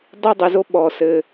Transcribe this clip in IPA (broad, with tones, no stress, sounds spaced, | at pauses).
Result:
dˤ i˥ dˤ i˨ z o˥ ɓ ɔ˨ s ɘ˨